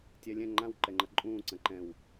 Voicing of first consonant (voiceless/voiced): voiceless